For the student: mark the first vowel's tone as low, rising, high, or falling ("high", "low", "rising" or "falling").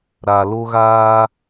low